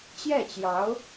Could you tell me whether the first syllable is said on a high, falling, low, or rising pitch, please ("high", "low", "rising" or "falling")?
falling